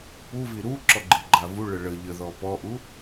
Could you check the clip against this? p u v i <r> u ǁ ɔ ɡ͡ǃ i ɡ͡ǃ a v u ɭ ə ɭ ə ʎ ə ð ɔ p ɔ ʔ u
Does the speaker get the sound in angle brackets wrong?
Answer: yes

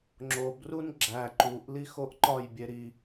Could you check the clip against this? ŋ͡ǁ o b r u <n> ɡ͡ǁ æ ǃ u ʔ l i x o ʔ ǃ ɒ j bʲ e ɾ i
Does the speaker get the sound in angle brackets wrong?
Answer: no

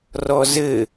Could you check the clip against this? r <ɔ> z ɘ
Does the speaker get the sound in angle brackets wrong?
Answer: no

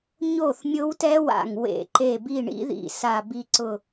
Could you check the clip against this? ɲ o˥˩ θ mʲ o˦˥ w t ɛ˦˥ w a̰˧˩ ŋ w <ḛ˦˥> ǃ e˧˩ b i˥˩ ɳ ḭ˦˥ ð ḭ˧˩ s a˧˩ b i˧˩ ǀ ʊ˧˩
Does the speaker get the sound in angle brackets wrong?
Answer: yes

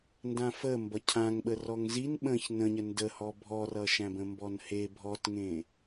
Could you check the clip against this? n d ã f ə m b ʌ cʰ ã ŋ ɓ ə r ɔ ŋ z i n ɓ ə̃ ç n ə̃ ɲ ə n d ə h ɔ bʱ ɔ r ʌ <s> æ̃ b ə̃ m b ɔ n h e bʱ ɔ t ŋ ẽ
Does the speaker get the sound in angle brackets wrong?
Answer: yes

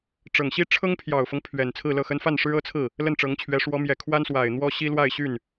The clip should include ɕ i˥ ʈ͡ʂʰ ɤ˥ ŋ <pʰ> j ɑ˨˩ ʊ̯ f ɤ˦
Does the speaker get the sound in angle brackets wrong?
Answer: no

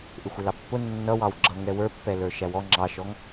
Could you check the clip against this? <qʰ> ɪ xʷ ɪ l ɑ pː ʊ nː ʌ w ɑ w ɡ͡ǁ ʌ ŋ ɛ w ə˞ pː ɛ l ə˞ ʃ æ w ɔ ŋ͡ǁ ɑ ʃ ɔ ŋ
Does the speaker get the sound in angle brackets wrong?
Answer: yes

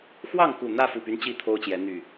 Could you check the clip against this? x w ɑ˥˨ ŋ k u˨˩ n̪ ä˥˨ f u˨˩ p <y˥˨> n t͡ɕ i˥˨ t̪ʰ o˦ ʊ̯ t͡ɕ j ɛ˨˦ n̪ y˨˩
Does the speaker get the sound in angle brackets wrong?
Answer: yes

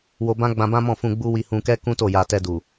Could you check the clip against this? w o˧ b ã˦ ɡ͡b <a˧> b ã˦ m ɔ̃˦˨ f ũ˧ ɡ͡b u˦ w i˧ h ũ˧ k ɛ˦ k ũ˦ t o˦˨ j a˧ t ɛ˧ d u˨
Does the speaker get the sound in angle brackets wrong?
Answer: yes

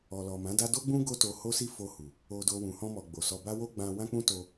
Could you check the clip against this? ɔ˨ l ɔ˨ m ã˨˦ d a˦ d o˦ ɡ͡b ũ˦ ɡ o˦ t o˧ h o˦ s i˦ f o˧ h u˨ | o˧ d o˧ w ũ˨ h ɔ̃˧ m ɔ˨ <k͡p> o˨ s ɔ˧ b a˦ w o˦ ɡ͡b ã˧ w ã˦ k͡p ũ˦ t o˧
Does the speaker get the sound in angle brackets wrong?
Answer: yes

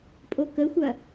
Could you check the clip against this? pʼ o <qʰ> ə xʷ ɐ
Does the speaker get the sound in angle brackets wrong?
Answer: yes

